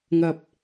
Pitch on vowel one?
low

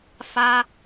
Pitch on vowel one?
high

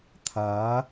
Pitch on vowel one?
rising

